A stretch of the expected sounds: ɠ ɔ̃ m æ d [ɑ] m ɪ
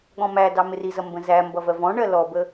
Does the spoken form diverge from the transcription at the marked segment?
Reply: no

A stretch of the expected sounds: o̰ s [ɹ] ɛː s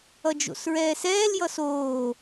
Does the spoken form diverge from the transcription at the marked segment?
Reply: no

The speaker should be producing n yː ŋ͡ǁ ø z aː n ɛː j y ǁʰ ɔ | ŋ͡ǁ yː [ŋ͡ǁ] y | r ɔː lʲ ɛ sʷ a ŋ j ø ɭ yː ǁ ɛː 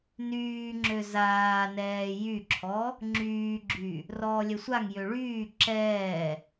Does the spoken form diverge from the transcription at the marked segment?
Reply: yes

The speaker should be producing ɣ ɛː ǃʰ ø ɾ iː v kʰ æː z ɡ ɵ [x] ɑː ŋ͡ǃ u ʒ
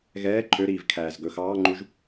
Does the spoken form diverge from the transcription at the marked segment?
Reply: no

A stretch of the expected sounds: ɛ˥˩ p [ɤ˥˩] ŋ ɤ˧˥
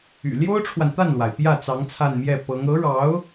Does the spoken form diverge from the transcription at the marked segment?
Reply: yes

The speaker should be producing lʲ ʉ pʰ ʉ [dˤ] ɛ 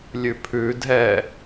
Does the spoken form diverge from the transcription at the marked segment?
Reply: yes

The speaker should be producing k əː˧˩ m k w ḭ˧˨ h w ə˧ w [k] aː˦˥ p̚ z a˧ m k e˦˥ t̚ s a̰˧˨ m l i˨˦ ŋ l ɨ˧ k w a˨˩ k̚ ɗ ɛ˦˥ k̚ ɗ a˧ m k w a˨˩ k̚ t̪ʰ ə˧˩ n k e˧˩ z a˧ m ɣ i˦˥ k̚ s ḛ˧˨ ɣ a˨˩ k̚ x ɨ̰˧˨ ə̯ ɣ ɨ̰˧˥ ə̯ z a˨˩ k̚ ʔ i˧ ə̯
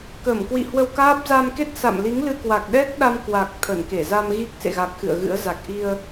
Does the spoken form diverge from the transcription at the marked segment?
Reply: no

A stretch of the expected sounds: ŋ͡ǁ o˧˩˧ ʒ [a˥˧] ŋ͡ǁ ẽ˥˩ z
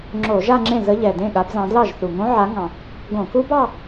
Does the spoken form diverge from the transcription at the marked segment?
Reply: no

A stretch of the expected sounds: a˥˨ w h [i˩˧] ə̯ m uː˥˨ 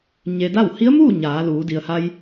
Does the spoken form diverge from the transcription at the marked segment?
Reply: yes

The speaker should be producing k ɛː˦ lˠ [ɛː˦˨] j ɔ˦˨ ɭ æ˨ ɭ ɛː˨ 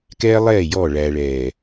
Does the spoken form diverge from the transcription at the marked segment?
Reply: no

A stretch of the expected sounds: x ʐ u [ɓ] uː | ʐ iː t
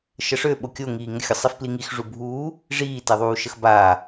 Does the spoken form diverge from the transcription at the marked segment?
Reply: yes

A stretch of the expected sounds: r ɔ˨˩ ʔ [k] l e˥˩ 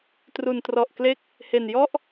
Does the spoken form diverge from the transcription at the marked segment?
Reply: no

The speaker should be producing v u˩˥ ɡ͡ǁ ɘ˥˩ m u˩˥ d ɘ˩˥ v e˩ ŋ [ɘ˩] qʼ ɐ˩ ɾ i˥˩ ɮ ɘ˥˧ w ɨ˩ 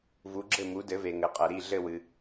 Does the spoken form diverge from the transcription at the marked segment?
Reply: no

